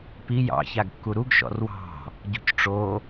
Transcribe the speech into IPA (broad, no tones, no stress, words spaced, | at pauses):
pi jɑ̰ çaɡkːuɾuɡ ʃɔ̰rwɑ̤ | ɟo̤cʈ͡ʂo